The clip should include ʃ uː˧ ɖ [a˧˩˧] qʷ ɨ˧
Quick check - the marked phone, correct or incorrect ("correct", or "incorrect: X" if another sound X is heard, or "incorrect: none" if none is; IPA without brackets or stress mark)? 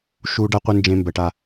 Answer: incorrect: a˧